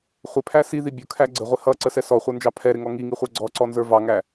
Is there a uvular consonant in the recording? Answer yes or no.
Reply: yes